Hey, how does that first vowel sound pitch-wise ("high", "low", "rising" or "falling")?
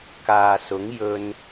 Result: low